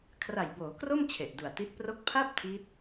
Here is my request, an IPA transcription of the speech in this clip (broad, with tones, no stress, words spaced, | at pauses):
kʰra˨˩jboː˩˦kro˥˩m t͡ɕʰe˨˩ʔdu˨˩a̯ti˦˥t̚pro˥˩k̚ pʰa˥˩p̚ tʰi˦˥t̚